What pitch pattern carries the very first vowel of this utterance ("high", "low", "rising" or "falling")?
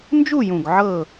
falling